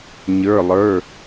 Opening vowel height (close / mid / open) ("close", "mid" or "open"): mid